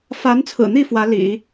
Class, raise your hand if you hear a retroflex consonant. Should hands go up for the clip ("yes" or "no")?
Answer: no